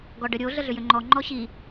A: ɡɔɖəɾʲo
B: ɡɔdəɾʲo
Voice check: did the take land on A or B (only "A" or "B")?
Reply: A